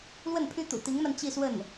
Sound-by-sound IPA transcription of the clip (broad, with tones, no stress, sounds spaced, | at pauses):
l w ə˥˩ n pʰ y˥ t̪ ṵ˨˩ t̪ i˧˥ ŋ m a˧ n t͡ɕ i˥˧ s w ə˥˩ n